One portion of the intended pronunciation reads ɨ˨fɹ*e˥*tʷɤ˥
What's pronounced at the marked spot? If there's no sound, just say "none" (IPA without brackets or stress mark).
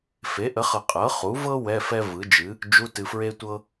e˥